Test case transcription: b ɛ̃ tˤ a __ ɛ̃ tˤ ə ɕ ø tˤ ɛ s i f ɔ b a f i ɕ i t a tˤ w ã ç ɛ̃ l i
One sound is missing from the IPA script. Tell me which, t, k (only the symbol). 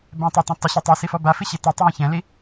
t